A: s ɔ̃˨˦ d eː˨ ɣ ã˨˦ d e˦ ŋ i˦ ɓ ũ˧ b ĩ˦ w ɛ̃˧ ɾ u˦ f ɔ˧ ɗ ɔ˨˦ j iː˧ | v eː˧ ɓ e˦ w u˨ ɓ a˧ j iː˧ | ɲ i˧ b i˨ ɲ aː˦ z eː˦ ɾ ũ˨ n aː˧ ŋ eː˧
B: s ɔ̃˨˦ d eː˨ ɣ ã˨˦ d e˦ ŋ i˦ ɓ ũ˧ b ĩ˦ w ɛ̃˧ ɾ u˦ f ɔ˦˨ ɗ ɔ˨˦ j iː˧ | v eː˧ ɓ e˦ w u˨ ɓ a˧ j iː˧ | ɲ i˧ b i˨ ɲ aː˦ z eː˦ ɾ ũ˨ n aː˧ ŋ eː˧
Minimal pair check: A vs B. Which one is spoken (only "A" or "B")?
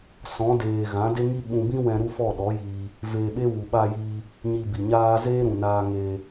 B